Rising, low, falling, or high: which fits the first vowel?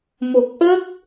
low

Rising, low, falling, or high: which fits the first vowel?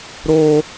high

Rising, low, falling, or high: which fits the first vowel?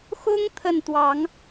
high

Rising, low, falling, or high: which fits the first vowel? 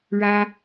high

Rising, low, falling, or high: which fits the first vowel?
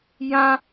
high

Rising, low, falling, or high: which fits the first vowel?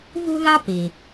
high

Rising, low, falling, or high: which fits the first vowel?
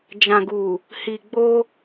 low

